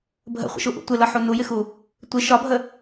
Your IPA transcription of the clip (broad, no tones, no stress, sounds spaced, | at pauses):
bʱ ə̰ χʷ ə̰ ʃ u ʔ ṵ tʷ ɪ l ʌ ħ u n u j ɪ x u | tʷ ɪ ʃ ɒ bʱ ə